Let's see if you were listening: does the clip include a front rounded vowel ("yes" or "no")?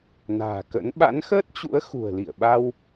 no